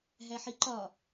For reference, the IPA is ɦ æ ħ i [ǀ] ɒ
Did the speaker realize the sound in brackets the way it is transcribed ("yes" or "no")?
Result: no